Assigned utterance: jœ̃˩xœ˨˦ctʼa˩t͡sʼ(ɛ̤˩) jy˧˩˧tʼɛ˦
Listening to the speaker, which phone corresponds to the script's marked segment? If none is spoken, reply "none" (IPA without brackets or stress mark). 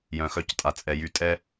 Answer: ɛ˩